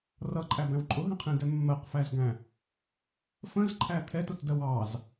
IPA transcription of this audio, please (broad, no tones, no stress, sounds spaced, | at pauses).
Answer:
r ʌ ǃʼ æ b æ̃ w ǃʼ ʊ ɦ ə̃ qʰ ĩ d ɛ mː ɜ q f æ z ɡ æ̃ | f ə̃ z ǃʰ æ t̪ʰ ɛ t ʊ t d ɜ w ɑ z